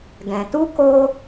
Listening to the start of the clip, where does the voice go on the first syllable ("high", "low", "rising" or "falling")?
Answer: low